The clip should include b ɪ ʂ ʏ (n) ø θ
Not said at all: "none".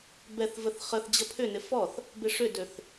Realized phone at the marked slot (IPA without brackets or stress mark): d